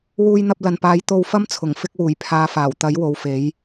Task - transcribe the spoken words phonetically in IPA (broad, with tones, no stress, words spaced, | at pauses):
wuː˧jn̪ɐ˧p̚lɐ˨npaː˨˥j t̪o˧wfɐ˥mt͡sʰʊ˨˩ŋ fɪ˧k̚wuː˨˩j pʰaː˨˧faː˨˩wt̪ɐ˨˥j wo˨˧wfe˨˥j